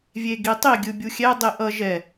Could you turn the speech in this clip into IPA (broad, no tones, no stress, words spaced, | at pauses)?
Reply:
vʲeɡitˤi ɡʲɯbʲuxʲɛ dˤiʔʌ ʒɛ